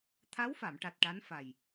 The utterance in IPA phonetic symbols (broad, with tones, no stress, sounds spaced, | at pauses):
t̪ʰ a˧˥ w f a˨˩˨ m ʈ a˨˩ t̚ ʈ a˧˥ n f a˨˩ j